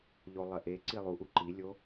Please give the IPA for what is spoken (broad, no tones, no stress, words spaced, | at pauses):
ʎolˠɐʔe ǀilˠuʔu ǃilʲo